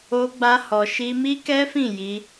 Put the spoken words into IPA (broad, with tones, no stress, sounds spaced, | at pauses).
o˧ ɡ͡b a˧ h ɔ˧ ʃ i˦ m i˦ k ɛ˦ f ĩ˦˨ j i˧